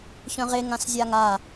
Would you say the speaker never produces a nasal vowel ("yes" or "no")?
no